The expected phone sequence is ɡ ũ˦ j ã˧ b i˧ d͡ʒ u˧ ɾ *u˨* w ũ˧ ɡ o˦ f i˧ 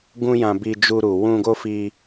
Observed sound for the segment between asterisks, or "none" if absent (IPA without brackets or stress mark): u˨